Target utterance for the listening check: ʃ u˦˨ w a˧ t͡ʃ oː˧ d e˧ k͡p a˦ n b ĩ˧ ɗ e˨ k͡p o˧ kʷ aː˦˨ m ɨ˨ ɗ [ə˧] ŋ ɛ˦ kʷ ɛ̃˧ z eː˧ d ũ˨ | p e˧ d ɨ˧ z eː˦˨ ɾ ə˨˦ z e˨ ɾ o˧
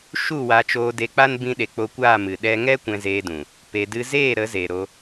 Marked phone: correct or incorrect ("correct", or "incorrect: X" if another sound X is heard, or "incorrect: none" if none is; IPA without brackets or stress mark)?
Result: incorrect: ɛ˧